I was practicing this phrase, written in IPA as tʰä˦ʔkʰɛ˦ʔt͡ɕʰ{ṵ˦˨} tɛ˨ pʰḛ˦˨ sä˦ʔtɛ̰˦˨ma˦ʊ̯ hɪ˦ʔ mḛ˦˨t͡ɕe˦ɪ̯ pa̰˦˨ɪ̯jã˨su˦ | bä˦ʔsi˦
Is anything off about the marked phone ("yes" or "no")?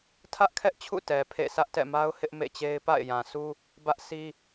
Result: no